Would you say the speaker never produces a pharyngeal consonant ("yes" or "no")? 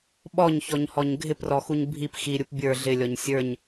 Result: yes